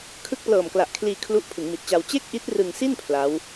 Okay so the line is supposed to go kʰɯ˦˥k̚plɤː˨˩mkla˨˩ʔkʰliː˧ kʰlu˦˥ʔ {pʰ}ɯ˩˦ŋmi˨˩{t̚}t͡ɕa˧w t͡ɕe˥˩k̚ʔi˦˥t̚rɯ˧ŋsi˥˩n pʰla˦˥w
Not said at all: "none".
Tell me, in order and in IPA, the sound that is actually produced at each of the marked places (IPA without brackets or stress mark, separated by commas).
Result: pʰ, t̚